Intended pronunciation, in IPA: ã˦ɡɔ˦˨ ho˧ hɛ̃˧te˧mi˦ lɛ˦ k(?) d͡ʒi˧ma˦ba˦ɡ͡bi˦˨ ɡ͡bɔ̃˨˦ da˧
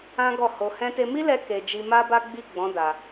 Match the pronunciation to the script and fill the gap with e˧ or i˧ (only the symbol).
e˧